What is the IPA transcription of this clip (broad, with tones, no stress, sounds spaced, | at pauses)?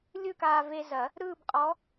lʲ ɯ˥˧ k aː˧ v e˧ z ɐ˨˩˦ | ɾ ɯː˥˧ b qʼ ɔ˧˥